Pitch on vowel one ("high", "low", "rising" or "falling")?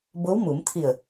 rising